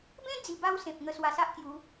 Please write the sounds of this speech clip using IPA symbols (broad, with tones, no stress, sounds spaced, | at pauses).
b ẽ˦ d͡z i˨˩ b a˧ w s ẽ˨ p̚ ŋ ə˧ s w a˧ s a˦ ʔ k j u˨˦